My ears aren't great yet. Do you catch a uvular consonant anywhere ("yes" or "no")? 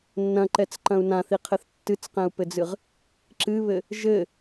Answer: yes